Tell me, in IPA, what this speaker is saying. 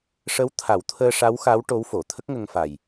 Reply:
ʂ ə˧˥ w t̪ʰ a˨˩˦ w t̪ʰ əː˧ ʂ a˧˥ w x a˧˥ w ʈ o˧˥ w f o˨˩˨ t̪ʰ ə˦˥ k̚ ŋ ə˧ ŋ f a˨˩ j

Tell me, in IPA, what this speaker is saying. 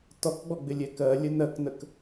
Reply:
t ɔ k ɡ͡b ɔ ɡ͡b ɪ lʲ ɛ k ɜ lʲ ə n ɜ k n ə k

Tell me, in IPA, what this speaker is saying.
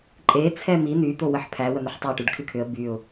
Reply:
ǃʼ e t͡sʰ ɛ m i n̪ y t̪ o w ə ħ pʰ æ w ə n̪ ə ħ tˤ ɛ ʈ y ɖ kʰ ɨ kʰ ʏ ə̯ b y ʊ̯

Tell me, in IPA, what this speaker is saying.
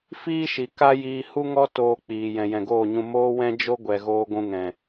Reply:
f iː˦ ʃ i˨ k a˦ j iː˧ h u˦ ŋ ɔ˦ t oː˧ k͡p iː˨ j ɛ̃˨ j ɛ̃˨ ɡ oː˦˨ ɲ ũ˧ m oː˦ w ɛ̃˦ d͡ʒ o˦ ɡʷ ɛ˨ ɣ oː˧ ɡʷ ũ˧ ŋ ɛ̃˨

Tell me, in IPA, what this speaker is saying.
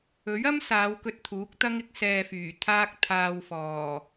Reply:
ɵ˨˥ ɥ ɐ˥ m s aː˨˧ w k ɵ˧ t̚ t̪ʰ uː˨˥ k̚ t̪ ɐ˥ ŋ ɪ˨˥ k̚ s ɛː˧ f yː˨˩ t̪ʰ aː˥ k̚ t̪ʰ aː˧ w f ɔː˨˩

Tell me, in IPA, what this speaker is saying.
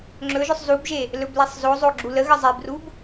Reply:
ŋ͡ǁ ɵ ʒ ʊ sˤ z u b ʒ e | l ɵ b l e sˤ z o zˤ o ɡ͡ǁ u l ə ɣ ə zˤ e b r u b

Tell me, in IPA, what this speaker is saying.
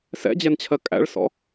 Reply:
s ɛ̰ d͡ʑ ɛ n t͡ɕʰ ɜ kʼ æ̰ ɭ s ɔ̰

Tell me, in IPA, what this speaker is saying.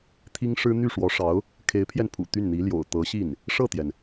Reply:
t̪ʰ i˥ ŋ ʂ ɻ̩˥ n̪ y˥˩ ʂ w ɔ˧˥ ʂ ɑ˧˥ ʊ̯ | kʰ e˧˥ ɪ̯ pʰ j ɛ˧ n pʰ ṵ˨˩ t̪ y˥˩ n n̪ i˧˥ l j o̰˨˩ ʊ̯ t̪ ɤ˧˥ ɕ i˥˩ n | ʂ ɤ˥˩ t̪ j ɛ˩ n

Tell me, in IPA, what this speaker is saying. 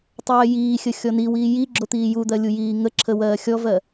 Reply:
tˤ ɜː j iː xʲ ə xʲ ɔ n i w iː j i ɡ͡ǁ o t̪ iː j u d̪ ɜ lʲ u j iː ŋ ə ǁʰ ə w ɜː xʲ ɔ v ɜ

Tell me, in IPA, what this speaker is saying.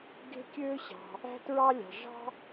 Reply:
ɡ e̤˥ kʲ øː˥ ɕ ɑ̤˩ | æ̤˥ t ɹ ɑ˥ lʲ ɑ̤˩ ʐ ɑ̤˥

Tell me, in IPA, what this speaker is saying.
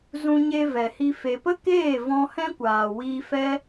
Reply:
z ũ˧ ɲ e˧ v ɛ˨ h i˧ f e˨ p ə˦ k eː˦˨ v ɔ̃˧ h ɛ̃˦ kʷ aː˨ w iː˧ f ɛ˦

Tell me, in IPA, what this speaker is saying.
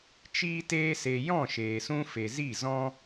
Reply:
t͡ʃ iː˦ t eː˦ s e˧ j ɔ̃˦˨ ʃ eː˨ s ũ˧ f e˨ z i˦˨ z ɔ̃˦

